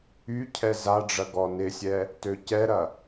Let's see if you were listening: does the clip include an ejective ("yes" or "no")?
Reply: no